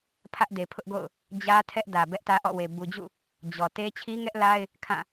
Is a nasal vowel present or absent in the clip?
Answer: present